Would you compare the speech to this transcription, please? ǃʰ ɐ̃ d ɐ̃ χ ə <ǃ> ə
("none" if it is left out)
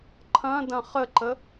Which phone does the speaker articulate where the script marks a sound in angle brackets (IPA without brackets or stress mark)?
ǃ